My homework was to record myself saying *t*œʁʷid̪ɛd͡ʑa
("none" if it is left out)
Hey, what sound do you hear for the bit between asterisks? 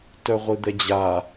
t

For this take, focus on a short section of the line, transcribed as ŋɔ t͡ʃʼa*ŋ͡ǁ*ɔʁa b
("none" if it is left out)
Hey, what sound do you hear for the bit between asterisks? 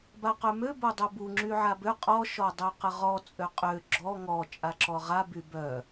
ǁ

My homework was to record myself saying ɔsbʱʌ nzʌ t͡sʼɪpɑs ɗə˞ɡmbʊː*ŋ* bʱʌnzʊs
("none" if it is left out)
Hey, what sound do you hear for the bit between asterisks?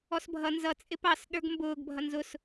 ɡ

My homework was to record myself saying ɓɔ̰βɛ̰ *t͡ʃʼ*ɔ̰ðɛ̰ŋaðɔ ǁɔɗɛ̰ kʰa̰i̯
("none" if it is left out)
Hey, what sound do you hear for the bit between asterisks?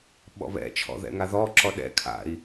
t͡ʃʰ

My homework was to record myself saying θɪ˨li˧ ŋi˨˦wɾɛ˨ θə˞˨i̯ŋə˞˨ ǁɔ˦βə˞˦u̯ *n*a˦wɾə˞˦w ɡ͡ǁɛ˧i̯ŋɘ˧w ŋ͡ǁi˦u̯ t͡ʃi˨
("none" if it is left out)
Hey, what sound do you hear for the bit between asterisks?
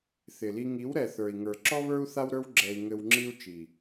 θ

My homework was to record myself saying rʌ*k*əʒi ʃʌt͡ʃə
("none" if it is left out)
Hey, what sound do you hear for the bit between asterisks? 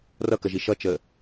k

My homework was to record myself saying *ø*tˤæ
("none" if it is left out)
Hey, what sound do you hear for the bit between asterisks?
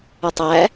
ʉ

